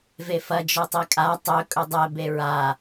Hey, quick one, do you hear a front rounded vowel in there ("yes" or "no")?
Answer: no